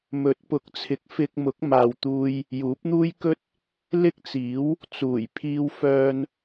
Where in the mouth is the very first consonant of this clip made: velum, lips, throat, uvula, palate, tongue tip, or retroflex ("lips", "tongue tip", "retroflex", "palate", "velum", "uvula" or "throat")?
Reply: lips